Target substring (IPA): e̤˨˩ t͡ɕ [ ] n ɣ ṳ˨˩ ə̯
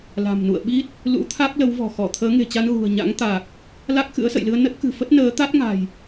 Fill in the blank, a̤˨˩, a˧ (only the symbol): a˧